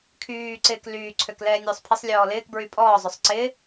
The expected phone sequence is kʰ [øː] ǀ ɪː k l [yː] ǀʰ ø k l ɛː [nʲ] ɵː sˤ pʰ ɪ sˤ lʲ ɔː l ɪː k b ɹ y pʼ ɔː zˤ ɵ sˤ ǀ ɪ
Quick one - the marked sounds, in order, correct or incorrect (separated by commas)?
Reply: incorrect, correct, correct